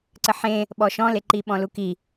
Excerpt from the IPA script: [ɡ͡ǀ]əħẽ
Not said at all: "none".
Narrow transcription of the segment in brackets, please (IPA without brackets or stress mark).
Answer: ǀ